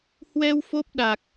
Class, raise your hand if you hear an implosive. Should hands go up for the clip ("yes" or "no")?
yes